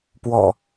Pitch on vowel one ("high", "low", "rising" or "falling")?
low